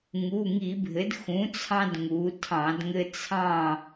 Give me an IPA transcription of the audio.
ŋ u˩˧˩ ŋ i˧˩˧ bʱ ɘ˩˥ d x ũ˩˥ t͡sʰ ɑ̃˦ d ŋ u˩˧ tʰ ɑ̃˧˩˧ d ŋ ɘ˦ t͡sʰ ɑ̃˥˨

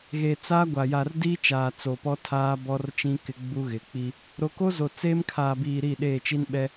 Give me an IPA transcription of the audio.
ɣ e˨ t͡s aː˦ ɡʷ a˨ j a˨ r d iː˦ t͡ʃ aː˨ t͡s o˨ p ɔ˦ tʰ aː˦ b ɔ˦ r t͡ʃ ĩ˦ k ɪ˦ ɡ͡b u˦ ɣ ɪ˨˦ k͡p i˦ | ɾ o˨ k o˦ z o˨ t͡s eː˦ m kʰ aː˨ b iː˨ ɾ iː˦˨ ɗ eː˦˨ t͡ʃ i˦ n ɓ ɛ˦

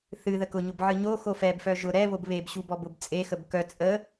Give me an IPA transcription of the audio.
θ ɨ ð ə k ʊ ɲ ʊ b ʕ ɨ ɲ o x o f ɛ b f œ ʒ ʊ ɾ ɛ β o b β e b ɕ u b ɔ b ʊ b t͡sʼ e x ə b k œ t͡sʼ ə

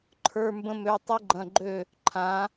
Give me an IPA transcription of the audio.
ǃʰ ə˞˧˥˧ m b ə̃˥ m ø˧˥˧ tˤ u˥ ɡ͡ǃ ɐ̃˧˥˧ ɡ͡ǃ ø˥˨ | ǃʰ ã˧˥

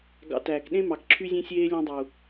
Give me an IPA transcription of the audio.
ɡ ɑ̰˧ t æː˨ k ɗ ẽ˦ m ɑ˨ k ǁʰ y˦ zʲ ẽ˦ sʲ eː˦ lʲ ɔ̃˦ dˤ u˨

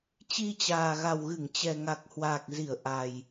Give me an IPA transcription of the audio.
t͡ɕ i˧ t͡ɕ aː˨˩ ɣ a˨˩ w ɣ ɨ˧˩ ŋ t͡ɕ ɛ˨˩ ŋ a˨˩ k̚ h w aː˨˩ k̚ z i˧˩ ə̯ ʔ a˨˩ j

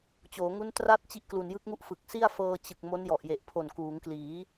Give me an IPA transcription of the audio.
t͡ɕ oː˩˦ ŋ u˦˥ n t r a˥˩ t̚ t͡ɕ i˥˩ ʔ k l u˨˩ n j ɯ˦˥ k̚ ŋ u˥˩ ʔ f ɯ˨˩ k̚ s i˥˩ a̯ f ɤː˧ t͡ɕ ɯ˨˩ k̚ m o˦˥ n j ɔ˨˩ ʔ j e˨˩ ʔ pʰ o˨˩ n k uː˩˦ ŋ k l iː˩˦

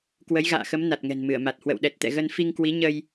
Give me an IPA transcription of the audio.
k w ə˨˦ j ɣ a̰ː˧˨ x ə˨˦ m n a˨˩ t̚ ŋ ɛ̤˨˩ n m ɨ˧˩ ə̯ m a˨˩ t̚ h w ə̰˧˨ w ɗ ɛ˨˩ t̚ t̪ ɛ̰˧˨ ɣ ə˧ n f i˧ ŋ k w i˨˦ ɲ ə˧ j

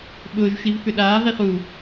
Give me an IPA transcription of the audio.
ɓ ʊː ʒ ʃ i v f ʏ ɗ aː ʁ i χ u

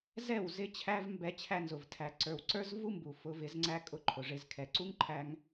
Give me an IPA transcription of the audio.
z ɛ˦˨ w z ɪ˦ t͡ɕʰ æ˦ v m b ɛ˦ t͡ɕʰ æ˧ n z ʊ˨ v tʰ æ˨ ǀ ə˞˨ w ǀ ə˞˦ z v u˦ m b u˨ f ʊ˨˦ v ɪ˨˦ z ŋ͡ǀ æ˦ kʼ ʊ˦ ǃʰ ʊ˨ ʐ ɪ˧ z kʰ ɛ˨ ǀ u˦ ŋ ǃʰ æ˧ ŋ

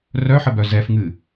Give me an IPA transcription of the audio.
r œ ħ ə b œ z ɛ f ŋ ɨ

